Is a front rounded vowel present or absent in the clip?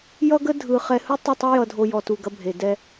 absent